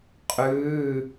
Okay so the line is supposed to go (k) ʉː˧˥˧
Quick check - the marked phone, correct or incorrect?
incorrect